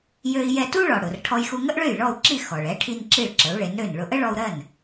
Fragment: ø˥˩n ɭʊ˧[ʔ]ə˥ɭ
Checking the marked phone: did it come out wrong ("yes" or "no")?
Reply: no